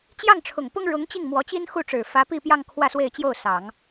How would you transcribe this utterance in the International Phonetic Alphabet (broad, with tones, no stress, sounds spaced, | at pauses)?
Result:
t͡ɕ j ɑ˥˩ ŋ ʈ͡ʂʰ ʊ˨˩ ŋ p ʊ˥ ŋ ɻ ʊ˧˥ ŋ t͡ɕ i˥˩ ŋ m w ɔ˧˥ t͡ɕ i˥ n x u˥˩ ʈ͡ʂ ɻ̩˨˩ f ä˧˥ p i˥˧ p j ɑ˥˧ ŋ kʰ w ä˥˧ s w e˥˧ ɪ̯ t͡ɕ j o˥˩ ʊ̯ s ɑ˨˩˦ ŋ